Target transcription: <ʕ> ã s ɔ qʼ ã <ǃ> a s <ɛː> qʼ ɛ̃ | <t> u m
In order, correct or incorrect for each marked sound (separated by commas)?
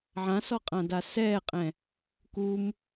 correct, incorrect, correct, incorrect